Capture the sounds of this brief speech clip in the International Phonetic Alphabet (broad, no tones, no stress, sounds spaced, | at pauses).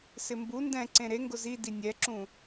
s ɪ m b u n d ɛ̃ ǀ ẽ ɾ e ŋ ɡ ʊ z i d i nʲ ɛ ǁ ũ